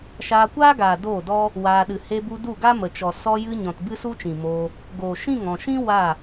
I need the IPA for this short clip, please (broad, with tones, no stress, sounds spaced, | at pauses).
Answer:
ʃ aː˧ kʷ aː˦ ɡ aː˨ d oː˦˨ d ɔ˦ | w aː˧ ɗ ɨ˨ h e˧ b u˧ d u˦˨ ɡ a˦ m ə˨ t͡ʃ ɔ˨ s ɔ˧ j ɨ˧ ɲ ɔ̃˨ t b ɨ˦ s u˦ t͡ʃ ĩ˨ m oː˧ | ɡ oː˨ ʃ ĩ˦˨ ŋ ɔ̃˨ ʃ ĩ˦ w a˦˨